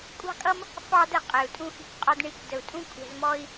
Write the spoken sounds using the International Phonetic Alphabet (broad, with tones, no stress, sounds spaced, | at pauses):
kʷʼ ɑ̤˦ kʼ ʌ˦ m | f ɑ˦ d ə˧ qʼ ɛ˨ u̯ tʼ ũ˧ x i̤˧ kʷ qʼ ɒ˧ d ɳ i˧ kʷ d ə˨ u̯ tʼ ũ˦ kʷʼ ɛ̤˧ z m ɔ˦ i̯